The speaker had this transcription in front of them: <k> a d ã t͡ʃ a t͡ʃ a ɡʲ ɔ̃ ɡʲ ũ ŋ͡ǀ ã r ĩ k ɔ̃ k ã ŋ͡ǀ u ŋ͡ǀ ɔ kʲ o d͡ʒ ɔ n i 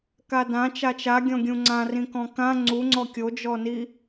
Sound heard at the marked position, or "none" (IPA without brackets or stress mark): k